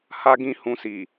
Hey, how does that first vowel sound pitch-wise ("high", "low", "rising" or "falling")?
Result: high